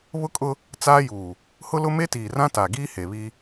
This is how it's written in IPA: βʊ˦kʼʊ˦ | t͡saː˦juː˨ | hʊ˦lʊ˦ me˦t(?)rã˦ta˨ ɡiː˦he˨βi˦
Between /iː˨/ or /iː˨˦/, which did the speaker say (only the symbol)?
iː˨